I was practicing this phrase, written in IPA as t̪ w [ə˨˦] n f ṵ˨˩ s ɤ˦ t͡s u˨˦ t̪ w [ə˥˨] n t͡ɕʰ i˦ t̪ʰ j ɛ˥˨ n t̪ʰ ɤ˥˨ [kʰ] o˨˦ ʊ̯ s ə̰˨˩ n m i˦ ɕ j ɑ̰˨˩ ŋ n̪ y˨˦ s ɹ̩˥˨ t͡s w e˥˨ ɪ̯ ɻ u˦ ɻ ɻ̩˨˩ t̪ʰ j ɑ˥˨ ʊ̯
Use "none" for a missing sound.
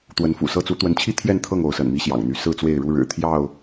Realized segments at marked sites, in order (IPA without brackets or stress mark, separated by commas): ə˨˦, ə˨˦, ŋ